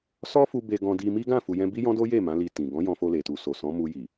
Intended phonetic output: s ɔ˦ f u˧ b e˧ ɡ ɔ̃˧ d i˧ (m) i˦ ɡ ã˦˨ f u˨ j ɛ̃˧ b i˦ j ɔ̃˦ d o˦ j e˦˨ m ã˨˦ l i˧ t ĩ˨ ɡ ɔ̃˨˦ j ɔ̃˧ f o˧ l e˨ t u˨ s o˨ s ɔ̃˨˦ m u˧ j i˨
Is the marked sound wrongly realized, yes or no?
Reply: no